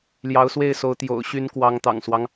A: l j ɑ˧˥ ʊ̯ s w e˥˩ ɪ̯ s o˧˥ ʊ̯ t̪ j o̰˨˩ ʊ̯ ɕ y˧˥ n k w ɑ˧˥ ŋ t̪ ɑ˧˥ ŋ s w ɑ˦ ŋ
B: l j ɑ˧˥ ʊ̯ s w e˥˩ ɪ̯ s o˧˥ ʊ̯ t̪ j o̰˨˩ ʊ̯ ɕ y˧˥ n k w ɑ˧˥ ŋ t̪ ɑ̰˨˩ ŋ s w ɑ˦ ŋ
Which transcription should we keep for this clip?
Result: B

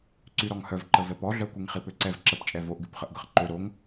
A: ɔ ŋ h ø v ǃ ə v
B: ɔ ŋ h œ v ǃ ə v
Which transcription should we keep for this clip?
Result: B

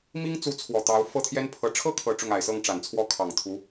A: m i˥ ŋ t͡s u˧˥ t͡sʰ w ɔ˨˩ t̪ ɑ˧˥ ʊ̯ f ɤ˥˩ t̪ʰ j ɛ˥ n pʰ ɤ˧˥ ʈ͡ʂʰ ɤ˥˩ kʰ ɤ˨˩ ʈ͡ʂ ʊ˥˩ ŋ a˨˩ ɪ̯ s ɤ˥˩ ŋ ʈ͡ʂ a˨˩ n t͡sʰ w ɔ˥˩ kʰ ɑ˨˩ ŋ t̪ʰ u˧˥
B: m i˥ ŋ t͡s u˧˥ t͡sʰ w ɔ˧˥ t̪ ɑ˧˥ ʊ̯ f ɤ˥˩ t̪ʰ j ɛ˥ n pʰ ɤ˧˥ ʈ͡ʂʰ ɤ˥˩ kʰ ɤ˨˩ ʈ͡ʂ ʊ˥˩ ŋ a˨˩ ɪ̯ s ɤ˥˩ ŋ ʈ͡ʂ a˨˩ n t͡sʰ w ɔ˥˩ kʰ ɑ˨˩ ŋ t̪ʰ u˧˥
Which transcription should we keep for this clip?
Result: A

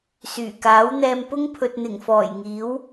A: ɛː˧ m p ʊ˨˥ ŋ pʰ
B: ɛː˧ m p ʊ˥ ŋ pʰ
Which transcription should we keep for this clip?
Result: B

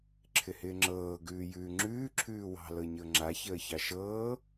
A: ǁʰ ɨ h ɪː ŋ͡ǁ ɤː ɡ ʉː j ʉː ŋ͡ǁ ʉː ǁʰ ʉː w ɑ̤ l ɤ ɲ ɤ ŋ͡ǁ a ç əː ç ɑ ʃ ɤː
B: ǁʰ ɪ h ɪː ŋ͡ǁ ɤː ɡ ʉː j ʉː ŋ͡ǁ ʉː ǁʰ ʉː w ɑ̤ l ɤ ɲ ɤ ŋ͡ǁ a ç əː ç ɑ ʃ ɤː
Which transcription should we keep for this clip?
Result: B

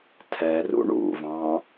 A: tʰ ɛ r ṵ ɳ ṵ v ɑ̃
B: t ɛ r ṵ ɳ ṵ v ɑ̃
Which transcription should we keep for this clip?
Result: A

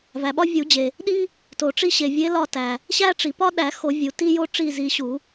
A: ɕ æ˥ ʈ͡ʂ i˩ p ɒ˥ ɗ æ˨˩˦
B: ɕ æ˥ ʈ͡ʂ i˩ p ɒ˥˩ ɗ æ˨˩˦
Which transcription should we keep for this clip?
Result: A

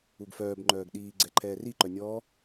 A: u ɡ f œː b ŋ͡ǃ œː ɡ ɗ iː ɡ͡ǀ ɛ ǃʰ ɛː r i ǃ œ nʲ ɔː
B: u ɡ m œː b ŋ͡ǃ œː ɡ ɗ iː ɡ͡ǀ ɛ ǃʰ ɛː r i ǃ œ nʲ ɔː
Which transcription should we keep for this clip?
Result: A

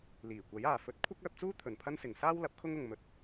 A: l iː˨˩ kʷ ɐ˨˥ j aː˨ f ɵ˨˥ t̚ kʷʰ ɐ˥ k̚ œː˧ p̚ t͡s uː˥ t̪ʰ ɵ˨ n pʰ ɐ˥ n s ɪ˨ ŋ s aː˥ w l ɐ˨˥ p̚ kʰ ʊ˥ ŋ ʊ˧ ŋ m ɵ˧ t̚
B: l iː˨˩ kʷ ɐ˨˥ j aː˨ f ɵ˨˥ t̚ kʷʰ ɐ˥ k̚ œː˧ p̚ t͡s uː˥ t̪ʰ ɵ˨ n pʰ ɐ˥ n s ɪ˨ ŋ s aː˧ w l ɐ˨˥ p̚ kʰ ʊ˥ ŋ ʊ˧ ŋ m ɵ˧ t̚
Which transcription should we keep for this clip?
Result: A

